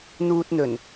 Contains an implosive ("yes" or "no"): no